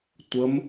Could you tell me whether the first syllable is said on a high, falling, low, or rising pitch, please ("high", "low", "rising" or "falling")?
rising